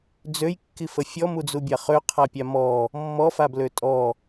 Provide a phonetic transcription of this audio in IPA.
d͡z ø j kː i f ə fʲ ɔ m u d͡z u bʲ a χ ø qʰ a pʲ a m ɔ | mː ɔ f a b l ø tʼ ɔ

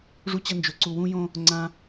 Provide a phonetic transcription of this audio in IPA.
ʐ u˦ t͡ɕ ɐ˦ n d͡ʒ ɵ˨ ǀ u˨ w ũ˦ j õ˦ | ŋ͡ǀ ã˦

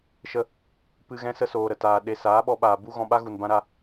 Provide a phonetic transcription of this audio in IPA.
ʃ ə˦ | p ɨ˧ ɣ ɛ̃˧ s ə˦ s oː˨ ɾ ə˨ t aː˨ ɗ e˧ s aː˨˦ ɓ ɔ˧ ɓ aː˨ b u˦ ɣ ɔ̃˧ ɓ a˦ ɣ u˨ n b ã˦ ɾ a˦

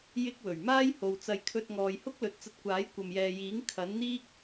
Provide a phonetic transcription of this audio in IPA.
j ɪ˥ k̚ w ɵ˨˩ ɥ m aː˥ j h o˨ w t͡s ɐ˧ j kʰ ɵ˧ t̚ ŋ ɔː˨ j h ʊ˥ k̚ l ɵ˨˥ t̚ t͡s ɐ˧ t̚ kʷ aː˨˥ j kʷ ɐ˨ m j ɛː˨ j iː˨˥ ŋ kʰ ɐ˨˥ n n̪ iː˥ k̚

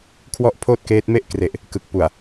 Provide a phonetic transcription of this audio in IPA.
kʰ w ɔ˥˩ ʔ pʰ oː˥˩ t̚ k eː˦˥ t̚ m e˥˩ ʔ k r e˨˩ ʔ | k ɯ˨˩ k̚ p u˨˩ a̯

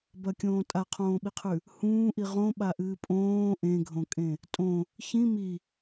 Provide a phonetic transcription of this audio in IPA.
b ɐ kʲ õː tʼ a qʰ õː ɓ i qʰ ʉ | h ũː ʔ i ʁ õ ɓ a ʔ ɨː pʼ õː ʔ ẽ ɡʱ õ kʼ ẽ | tʼ õ | ç ĩ m i

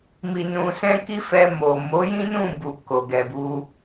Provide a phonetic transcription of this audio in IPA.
m i˨ n ũ˨ s ɛ̃˧ k i˦ f ɛ˧ m o˨ m o˨˦ j ĩ˦ n ũ˦˨ b u˨ k o˨ ɡ ɛ˨ b u˧

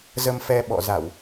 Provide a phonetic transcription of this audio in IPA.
z ə˧ m f ɛ˧ ɓ ɔ̰˧˨ z a˧˩˨ w

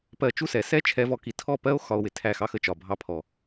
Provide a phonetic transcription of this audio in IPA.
p ɜ˧ t͡ʃ u˦ s ɛ˨ s ɛ˦ t͡ʃʰ ɛ˧ v ɔ˧ k i˨ tʰ ɔ˦˨ p ɜ˦ o̯ x ɒ˧ o̯ w ɪ˨ tʰ æ˦˨ x ɑ˦ x ə˨ t͡ʃ ɒ˨ bʱ ɑ˧ pʰ ɔ˨

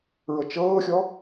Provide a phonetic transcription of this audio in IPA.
ɹ ɤ t͡ʃ ɤː xʲ ɔ

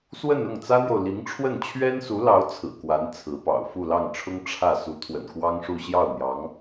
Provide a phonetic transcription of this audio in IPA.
s w ə˥˧ n ʊ˥˩ ŋ t͡s ä˥ n̪ j o˨ ʊ̯ l i˧˥ ŋ ʈ͡ʂʰ w ə˥˩ n t͡ɕʰ ɥ ɛ˥ n s u˧˥ l ɑ˧˥ ʊ̯ t͡sʰ ɹ̩˨˩ k w a˧˥ n t͡sʰ ɹ̩˧˥ p ɑ̰˨˩ ʊ̯ f u˥˧ l ɑ˥˩ ŋ ʈ͡ʂʰ ʊ˥ ŋ ʈ͡ʂʰ ä˥˩ s u˧˥ t̪ʰ w ə̰˨˩ n k w ɑ˥ ŋ ʂ u˥˧ ɕ j ɑ˥˩ ʊ̯ n̪ j ɑ˧˥ ŋ

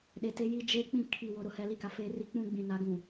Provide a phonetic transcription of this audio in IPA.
ɗ e˨ t e˦ j i˦ d͡ʒ eː˦ k͡p ĩ˦˨ kʰ i˨ w ʊ˨ ɾ ʊ˨ h ɛ˨ l i˦˨ k a˨ f eː˦ r i˦ k͡p ũ˦ ɡ͡b ĩ˨ n a˨˦ ɡ ũ˨

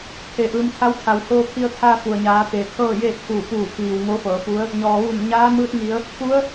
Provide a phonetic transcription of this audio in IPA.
kʰ e˩˧ ʔ ɯː˩˧ m t̪ʰ a˧˥ w t̪ʰ a˩ w h oː˧ kʰ i˧ ə̯ t̪ʰ aː˧ f u˩ ə̯ ɲ aː˩˧ t̪ eː˩ kʰ ɤː˥˨ j eː˥˨ t̚ kʰ uː˧˩ p uː˧˩ pʰ iː˩ w ŋ o˧˥ f ɤː˩˧ f u˧˥ ə̯ | ɲ ɔː˩ ʋ uː˧˩ m ɲ aː˧˥ m ɯː˧˥ t̚ ŋ i˩˧ ə̯ | k u˧˥ ə̯

